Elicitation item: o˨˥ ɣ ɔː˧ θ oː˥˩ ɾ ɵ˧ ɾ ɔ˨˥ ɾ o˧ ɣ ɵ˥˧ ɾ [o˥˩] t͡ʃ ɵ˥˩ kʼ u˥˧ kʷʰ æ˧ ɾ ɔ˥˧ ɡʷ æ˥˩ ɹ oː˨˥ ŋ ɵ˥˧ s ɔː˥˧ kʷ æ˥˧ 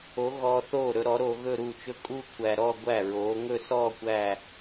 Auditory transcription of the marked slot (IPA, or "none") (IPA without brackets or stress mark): u˥˩